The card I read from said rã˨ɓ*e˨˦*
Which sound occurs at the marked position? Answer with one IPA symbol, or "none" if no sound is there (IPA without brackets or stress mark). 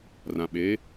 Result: e˨˦